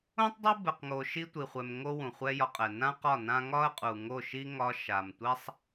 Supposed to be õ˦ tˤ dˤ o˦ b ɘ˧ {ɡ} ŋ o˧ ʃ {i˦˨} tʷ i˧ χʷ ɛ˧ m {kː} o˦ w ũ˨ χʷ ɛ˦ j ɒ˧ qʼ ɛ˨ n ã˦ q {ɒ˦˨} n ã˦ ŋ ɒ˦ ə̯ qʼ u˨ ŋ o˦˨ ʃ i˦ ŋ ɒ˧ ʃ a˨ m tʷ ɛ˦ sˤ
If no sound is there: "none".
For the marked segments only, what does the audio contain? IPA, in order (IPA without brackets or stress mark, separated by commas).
q, i˦, ŋ, ɒ˦˨